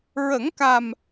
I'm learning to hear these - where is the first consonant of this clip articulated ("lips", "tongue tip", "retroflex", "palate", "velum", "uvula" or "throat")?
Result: tongue tip